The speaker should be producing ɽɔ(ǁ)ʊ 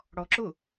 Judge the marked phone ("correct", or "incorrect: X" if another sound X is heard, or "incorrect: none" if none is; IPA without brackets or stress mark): correct